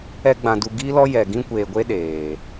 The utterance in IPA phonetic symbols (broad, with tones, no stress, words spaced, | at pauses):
ɛ˦ɡ͡bã˧du˧ ɡi˦lɔ˦jɛ˨ɡĩ˦ kʷeː˨ɡʷe˦ ɗeː˨